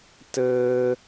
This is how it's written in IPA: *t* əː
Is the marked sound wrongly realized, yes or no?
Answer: no